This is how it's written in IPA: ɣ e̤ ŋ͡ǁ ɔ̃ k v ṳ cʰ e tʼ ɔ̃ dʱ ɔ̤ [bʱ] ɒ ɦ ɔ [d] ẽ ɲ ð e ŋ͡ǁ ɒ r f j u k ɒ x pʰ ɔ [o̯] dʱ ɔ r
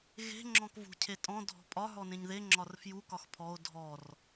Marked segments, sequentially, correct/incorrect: incorrect: pʼ, incorrect: n, correct

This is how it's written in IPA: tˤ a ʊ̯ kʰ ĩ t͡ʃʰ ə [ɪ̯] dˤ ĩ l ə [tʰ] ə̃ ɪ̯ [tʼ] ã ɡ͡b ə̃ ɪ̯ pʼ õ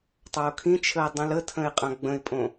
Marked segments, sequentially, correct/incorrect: correct, correct, incorrect: qʼ

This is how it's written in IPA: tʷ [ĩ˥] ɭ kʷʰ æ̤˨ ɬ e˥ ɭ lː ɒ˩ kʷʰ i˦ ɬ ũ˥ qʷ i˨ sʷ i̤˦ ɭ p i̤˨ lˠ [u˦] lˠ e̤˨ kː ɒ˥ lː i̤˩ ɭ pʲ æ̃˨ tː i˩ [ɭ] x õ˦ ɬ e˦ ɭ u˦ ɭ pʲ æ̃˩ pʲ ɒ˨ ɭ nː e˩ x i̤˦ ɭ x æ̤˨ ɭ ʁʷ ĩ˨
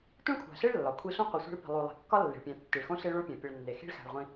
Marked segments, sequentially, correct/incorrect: correct, incorrect: u˨, correct

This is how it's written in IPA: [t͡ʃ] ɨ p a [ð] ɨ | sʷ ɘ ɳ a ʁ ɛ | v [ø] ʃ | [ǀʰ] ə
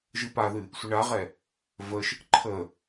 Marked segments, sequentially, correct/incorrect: incorrect: ʒ, correct, incorrect: ə, incorrect: ǃʰ

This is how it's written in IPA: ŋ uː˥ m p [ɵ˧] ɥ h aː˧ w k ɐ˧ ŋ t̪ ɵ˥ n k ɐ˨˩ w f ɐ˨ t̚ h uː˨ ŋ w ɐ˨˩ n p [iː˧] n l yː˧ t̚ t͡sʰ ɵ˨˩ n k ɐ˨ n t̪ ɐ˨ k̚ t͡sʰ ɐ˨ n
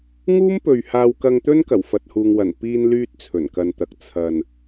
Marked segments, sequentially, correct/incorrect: incorrect: ɵ˨, correct

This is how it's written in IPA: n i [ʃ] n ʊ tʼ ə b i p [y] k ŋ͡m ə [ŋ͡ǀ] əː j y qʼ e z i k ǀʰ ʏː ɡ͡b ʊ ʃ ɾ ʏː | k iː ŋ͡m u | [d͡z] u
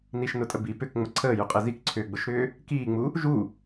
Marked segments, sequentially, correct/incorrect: correct, incorrect: ʏ, incorrect: ǀʰ, incorrect: ʒ

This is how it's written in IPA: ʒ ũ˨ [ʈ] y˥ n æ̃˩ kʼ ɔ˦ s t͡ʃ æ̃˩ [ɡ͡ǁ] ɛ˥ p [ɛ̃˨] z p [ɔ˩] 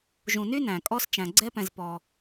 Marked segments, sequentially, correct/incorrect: incorrect: n, incorrect: ɡ͡ǀ, correct, correct

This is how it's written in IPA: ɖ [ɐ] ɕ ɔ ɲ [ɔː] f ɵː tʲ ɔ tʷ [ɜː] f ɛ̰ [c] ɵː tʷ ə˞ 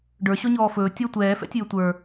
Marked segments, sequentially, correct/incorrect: incorrect: ə˞, correct, incorrect: ɛː, incorrect: tʲ

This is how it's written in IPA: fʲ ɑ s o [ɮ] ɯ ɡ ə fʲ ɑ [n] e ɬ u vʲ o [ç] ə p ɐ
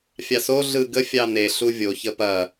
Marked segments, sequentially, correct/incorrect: correct, correct, correct

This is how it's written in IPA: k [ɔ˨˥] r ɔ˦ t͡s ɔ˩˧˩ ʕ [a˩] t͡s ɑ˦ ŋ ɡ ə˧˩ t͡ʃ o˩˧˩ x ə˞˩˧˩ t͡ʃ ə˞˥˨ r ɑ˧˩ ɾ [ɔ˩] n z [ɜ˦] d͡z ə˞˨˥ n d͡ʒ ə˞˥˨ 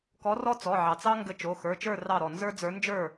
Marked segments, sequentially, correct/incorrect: correct, incorrect: ɑ˩, correct, incorrect: ə˞˦

